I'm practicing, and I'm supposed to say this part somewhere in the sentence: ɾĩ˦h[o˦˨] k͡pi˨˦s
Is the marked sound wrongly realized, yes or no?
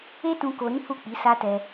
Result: yes